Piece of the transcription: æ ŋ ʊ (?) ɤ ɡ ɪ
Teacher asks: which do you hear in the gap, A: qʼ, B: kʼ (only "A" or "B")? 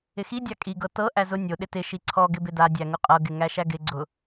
A